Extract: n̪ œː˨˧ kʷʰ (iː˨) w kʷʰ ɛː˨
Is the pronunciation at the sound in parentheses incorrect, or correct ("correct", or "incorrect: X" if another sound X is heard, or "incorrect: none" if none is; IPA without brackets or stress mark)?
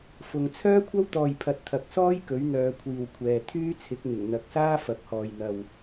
correct